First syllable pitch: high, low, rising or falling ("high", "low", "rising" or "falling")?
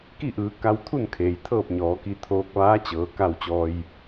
falling